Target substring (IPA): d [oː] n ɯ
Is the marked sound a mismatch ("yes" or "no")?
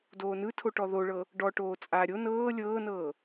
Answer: no